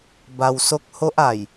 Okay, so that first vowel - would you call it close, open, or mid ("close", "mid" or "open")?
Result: open